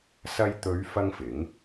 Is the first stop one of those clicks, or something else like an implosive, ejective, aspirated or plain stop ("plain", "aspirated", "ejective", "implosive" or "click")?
plain